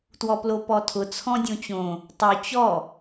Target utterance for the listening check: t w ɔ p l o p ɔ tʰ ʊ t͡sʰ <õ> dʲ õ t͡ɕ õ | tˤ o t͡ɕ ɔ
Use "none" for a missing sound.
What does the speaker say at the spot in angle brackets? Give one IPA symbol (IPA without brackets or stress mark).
ɔ̃